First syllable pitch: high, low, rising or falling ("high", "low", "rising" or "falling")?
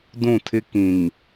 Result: falling